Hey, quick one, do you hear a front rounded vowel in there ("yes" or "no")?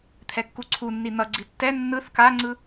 no